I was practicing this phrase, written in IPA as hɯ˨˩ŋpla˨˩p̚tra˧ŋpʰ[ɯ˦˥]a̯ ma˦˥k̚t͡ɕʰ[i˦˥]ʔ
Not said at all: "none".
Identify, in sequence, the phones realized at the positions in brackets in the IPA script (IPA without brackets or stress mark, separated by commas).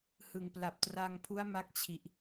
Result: u˦˥, i˨˩